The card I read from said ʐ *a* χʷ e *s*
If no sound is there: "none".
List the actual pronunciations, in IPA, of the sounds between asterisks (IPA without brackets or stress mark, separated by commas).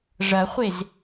ɐ, z